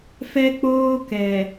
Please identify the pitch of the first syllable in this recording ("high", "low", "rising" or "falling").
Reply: high